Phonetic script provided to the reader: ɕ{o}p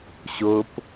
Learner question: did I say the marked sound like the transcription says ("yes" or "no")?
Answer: yes